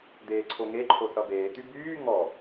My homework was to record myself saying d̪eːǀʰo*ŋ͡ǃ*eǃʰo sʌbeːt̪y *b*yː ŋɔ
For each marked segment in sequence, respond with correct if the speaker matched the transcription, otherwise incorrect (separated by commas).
incorrect, correct